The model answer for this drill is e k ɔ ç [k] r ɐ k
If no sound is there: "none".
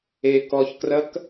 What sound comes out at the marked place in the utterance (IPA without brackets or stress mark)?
k